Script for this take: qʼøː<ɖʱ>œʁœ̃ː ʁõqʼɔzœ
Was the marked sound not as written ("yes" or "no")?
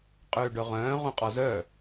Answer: yes